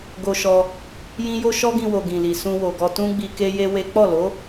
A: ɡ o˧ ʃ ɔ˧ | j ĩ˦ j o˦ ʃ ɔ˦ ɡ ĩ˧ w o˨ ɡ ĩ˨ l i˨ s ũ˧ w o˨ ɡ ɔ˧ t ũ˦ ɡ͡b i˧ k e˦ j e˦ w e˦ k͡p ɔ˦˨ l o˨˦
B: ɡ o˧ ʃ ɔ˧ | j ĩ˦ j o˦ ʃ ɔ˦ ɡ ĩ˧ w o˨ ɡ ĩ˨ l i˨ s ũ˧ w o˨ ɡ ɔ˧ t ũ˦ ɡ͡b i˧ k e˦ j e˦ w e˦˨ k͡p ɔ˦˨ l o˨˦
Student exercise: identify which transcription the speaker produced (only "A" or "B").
A